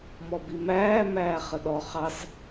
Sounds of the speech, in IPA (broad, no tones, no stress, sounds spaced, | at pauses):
m ɔ b i m æː m æː χ ə ɗ ɔ χ ɑ s